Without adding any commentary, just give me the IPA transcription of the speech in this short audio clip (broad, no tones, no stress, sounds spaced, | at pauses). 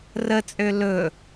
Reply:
r ə t͡sʼ ø l ɵ